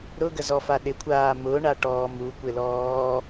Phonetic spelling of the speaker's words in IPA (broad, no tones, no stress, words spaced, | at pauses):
ɾʊɡəzɔfa ɗɪkʷʰaː mʊɳaʈɔː mukʷɪlɔː